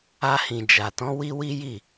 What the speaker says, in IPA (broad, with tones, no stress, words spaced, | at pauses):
a˧hĩ˨d͡ʒa˨tɔ̃˨˦ wi˦wi˦ji˦˨